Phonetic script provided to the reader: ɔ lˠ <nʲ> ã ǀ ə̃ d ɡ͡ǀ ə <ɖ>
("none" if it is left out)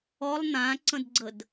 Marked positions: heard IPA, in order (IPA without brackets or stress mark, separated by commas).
n̪, d